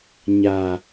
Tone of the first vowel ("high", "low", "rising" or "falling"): low